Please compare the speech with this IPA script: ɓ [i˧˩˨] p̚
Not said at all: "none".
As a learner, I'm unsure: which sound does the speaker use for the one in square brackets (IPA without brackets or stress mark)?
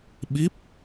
i˦˥